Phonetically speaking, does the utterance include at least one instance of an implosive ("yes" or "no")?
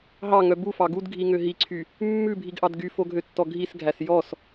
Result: no